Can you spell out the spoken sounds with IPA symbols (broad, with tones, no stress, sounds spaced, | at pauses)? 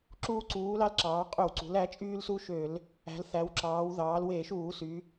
ǁ uː˧ ǀ uː˩˧ l ɑ˧ l ǁ ɑː˩˧ qʼ ø˧˩˧ w ǀ ṳ˩˧ l æ˩˧ t͡ʃʼ yː˧ l s u˧ ʃ ø˧˩˧ l | æ̤˩˧ l θ æ˩˧ w ǁ ɑː˩˧ w ð ɑː˩˧ l w e˧˩˧ ʃ uː˧˩˧ s y˩˧